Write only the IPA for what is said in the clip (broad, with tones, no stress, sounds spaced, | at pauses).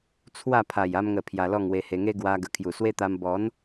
t͡sʰ w a˥˧ pʰ a˨˩ j a˧ m ŋ ə˨˩ pʰ j a˧ l ɔ˥˧ ŋ w e˧ h e˧ ŋ e˦ ɡ w a˧ ɡ ə˨˩ kʰ j u˨˩ s w e˦ t̪ a˧ m b ɔ˨˦ n